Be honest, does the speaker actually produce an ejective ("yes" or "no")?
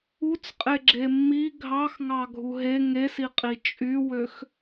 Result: yes